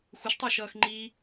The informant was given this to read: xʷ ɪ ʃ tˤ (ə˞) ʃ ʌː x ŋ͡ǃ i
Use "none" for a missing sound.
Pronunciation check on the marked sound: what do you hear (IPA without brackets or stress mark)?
ə˞